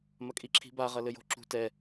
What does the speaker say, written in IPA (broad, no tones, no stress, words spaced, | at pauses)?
mɐkʼiǁʰi̤ba ʁɐlɘjo̤ǁṳ tɛ